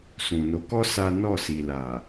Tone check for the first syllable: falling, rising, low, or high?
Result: low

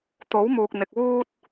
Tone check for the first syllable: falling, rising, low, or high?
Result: rising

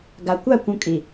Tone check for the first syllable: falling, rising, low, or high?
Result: low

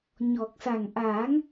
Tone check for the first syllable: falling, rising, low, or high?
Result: low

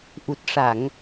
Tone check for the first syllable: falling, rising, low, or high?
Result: low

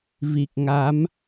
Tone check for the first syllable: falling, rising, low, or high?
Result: low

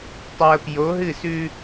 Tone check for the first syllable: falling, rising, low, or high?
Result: low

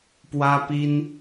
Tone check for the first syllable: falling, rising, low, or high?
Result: high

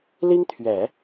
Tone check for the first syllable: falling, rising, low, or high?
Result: high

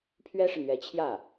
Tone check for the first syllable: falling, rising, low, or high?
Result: high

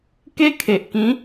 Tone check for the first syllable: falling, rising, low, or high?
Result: high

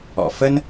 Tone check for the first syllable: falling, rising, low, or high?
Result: low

